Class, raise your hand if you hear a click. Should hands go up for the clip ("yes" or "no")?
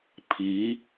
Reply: no